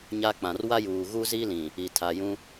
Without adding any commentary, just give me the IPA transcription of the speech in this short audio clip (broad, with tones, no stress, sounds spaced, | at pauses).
ɲ a˦ k͡p ã˨ r w a˦ j uː˨ ɣ u˦ z i˦ l ĩ˨ | i˨ tʰ a˨ j ũ˦